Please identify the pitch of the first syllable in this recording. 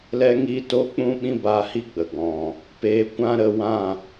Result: high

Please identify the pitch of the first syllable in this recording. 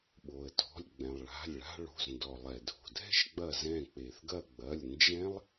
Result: low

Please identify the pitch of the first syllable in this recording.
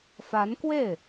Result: rising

